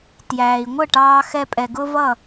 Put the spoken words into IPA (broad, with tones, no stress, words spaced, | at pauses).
tjæː˩i̯ŋʷə˥˩ʈɑː˧xɛ˧ pʼɛ˩ɡʊ˥vʌ˥˩